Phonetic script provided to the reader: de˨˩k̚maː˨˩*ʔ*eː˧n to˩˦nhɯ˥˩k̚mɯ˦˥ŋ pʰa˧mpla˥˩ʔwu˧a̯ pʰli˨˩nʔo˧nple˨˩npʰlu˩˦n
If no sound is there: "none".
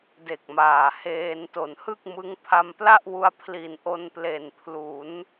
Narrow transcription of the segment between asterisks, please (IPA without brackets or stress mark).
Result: h